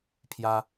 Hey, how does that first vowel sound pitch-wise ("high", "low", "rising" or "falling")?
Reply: high